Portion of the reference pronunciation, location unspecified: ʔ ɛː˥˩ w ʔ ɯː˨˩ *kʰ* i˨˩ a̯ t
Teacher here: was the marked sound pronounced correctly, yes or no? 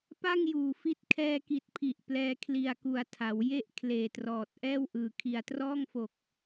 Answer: yes